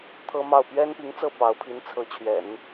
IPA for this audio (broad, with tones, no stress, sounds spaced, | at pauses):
t̪ʰ ɤ˥ m ɑ˥˩ ʊ̯ p ɥ ɛ˥ n p i˧˥ ŋ t͡s ɤ˥˩ p ɑ˧˥ ʊ̯ pʰ i˧˥ n t͡sʰ ɤ˧˥ t͡ɕʰ ɥ ɛ̰˨˩˦ n